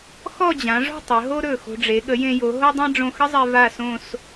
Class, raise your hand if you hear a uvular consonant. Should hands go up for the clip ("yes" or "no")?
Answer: no